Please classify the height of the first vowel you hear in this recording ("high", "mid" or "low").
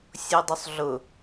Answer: mid